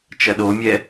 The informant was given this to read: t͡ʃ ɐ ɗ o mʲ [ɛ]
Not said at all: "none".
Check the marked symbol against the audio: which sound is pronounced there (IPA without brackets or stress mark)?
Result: ɛ